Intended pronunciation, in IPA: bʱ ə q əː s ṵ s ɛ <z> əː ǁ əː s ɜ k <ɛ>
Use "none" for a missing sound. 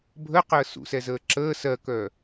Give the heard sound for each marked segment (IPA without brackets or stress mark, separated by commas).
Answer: z, œ